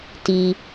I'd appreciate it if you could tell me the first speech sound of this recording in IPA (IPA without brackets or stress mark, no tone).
t